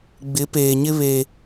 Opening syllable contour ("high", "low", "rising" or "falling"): rising